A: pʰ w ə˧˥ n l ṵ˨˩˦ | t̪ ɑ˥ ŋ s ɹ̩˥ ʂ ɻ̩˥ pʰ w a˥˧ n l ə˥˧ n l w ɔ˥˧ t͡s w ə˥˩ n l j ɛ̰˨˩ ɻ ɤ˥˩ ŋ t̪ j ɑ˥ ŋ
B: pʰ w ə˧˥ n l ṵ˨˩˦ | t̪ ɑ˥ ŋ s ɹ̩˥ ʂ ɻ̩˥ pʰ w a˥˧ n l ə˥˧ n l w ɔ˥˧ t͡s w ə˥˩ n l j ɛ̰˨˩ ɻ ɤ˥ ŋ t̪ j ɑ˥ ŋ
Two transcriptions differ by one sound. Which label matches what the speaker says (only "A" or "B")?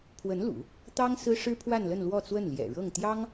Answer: A